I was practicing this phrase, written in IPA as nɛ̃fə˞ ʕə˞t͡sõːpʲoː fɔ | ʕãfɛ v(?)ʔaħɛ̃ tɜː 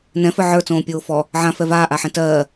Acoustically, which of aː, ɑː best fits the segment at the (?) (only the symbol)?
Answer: aː